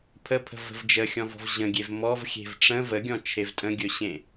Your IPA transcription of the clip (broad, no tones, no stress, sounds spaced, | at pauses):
pʰ ə pʰ ə̤ v ə̤ v d͡ʒ ə xʲ ɔ̃ v ɔ̤ v ʑ ə̃ ɡʲ e v m ɔ v xʲ e̤ v ʈ͡ʂ ə̃ v ə ɡʲ ɔ̃ t͡ʃʰ e v tʼ ə̃ ɡʲ ɵ ɕ ẽ